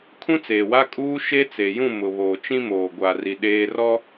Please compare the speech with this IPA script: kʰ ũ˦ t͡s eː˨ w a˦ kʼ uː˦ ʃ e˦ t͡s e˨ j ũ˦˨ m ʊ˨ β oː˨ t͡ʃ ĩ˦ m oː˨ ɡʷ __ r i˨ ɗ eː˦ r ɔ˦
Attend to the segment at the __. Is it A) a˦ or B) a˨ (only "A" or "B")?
B